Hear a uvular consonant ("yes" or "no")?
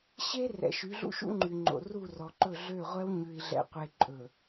yes